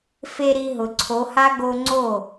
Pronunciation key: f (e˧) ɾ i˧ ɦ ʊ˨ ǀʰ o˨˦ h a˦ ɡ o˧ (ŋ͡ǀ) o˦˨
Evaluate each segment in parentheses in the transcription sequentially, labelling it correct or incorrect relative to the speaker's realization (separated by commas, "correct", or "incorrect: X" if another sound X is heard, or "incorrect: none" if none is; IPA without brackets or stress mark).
correct, correct